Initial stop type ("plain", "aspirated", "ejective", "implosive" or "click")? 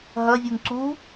click